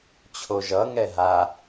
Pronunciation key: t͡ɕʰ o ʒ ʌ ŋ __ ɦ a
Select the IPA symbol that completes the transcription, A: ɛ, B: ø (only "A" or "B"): A